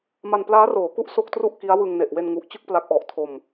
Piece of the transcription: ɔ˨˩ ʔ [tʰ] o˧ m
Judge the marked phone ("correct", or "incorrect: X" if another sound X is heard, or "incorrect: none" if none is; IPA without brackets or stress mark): correct